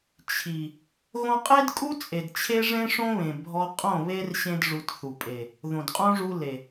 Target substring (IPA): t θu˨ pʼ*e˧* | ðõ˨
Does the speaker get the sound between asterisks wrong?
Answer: yes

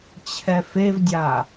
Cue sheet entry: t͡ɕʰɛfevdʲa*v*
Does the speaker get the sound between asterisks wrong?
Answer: yes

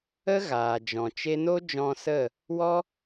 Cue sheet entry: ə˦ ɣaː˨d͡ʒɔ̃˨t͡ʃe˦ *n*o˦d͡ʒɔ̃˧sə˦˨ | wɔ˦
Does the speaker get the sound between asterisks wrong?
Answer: no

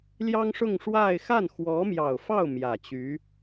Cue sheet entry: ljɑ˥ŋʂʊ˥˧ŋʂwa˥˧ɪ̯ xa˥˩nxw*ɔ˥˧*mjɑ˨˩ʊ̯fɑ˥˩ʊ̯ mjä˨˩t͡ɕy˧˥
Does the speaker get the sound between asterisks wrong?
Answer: yes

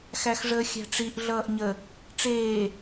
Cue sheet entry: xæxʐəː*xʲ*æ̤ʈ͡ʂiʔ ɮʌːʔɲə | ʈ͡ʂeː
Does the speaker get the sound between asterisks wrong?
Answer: no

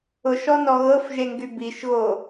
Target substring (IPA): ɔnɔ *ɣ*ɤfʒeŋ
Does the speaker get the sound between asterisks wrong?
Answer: no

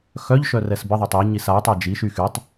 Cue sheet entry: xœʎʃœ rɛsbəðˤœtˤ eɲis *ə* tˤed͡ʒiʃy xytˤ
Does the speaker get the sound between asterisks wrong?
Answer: yes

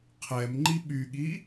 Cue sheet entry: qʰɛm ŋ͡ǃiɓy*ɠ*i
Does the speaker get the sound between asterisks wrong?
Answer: no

